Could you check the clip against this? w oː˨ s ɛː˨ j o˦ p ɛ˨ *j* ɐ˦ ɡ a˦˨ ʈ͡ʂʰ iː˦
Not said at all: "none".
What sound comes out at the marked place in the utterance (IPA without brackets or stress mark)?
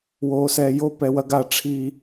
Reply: w